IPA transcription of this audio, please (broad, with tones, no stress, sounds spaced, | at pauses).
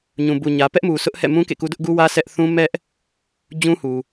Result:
ɲ ũ˨ b u˨ ɲ ä˨ p ɛ˦ ʔ m u˨ s ʊ˦ ʔ h ɛ̰˦˨ m ũ˦ k ḛ˦˨ k u˦ d ʊ˦ ʔ ɡ u˦ w ä˦ s ɛ˦ ʔ θ ũ˦ m ɛ˦ ʔ | d͡ʑ ũ˦ h u˨